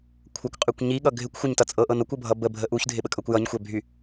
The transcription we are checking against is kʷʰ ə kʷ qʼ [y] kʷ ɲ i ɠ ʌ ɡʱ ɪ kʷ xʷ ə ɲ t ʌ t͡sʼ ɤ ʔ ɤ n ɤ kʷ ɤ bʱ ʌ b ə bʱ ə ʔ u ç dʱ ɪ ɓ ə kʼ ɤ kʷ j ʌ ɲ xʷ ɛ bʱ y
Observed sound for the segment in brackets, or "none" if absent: y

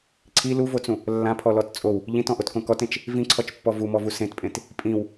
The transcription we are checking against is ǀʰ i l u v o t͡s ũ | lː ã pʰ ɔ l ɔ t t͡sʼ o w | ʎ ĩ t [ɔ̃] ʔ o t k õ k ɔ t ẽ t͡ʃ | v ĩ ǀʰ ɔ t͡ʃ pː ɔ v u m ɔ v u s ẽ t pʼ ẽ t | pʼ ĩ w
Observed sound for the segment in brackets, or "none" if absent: ɔ̃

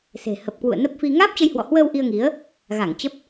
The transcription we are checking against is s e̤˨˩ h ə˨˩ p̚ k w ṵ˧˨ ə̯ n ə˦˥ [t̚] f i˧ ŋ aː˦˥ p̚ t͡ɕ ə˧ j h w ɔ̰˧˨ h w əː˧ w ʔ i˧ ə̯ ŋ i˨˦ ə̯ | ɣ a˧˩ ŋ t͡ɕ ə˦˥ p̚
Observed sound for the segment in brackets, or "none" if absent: p̚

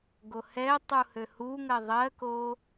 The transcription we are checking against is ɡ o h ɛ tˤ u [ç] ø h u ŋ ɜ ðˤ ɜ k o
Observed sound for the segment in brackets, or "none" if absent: h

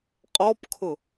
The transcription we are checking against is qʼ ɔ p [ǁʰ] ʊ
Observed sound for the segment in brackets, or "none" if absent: kʰ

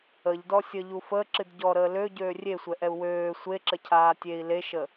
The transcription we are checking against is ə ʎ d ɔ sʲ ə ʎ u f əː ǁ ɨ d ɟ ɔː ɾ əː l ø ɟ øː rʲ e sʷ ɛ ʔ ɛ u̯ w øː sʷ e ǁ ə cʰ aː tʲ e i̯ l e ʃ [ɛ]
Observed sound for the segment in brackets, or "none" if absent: ə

